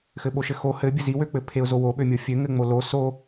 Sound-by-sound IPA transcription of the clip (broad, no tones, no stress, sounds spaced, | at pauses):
x ɘ ɓ o ʃ ɘ x o h ɘ bʲ ɘ z i w ø k͡p ɘ pʰ e ʊ̯ z o w o ɓ ø mʲ o fʲ ø ŋ ɘ ŋ͡m o l o s o